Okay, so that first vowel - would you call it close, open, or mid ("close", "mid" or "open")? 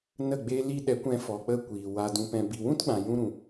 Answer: mid